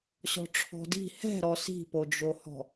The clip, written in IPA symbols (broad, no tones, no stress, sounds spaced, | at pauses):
ɕ ɔ̤ ʈ͡ʂʰ ɔ̤ d i̤ h ɛ̤ ɾ ɔ s i̤ p o d͡ʒ o h ɔ̤